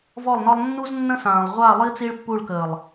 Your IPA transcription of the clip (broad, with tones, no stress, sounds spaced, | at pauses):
v ɔ˦˨ lˠ n ɒ˦ lˠ nː u˦ z nː ə̃˦ s ãː˨ lˠ ʁʷ a˦˨ lˠ i˦ t͡s i˦ ɭ pː u˦˨ ɭ k əː˨ lˠ